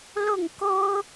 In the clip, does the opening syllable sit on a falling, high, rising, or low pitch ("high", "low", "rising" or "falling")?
falling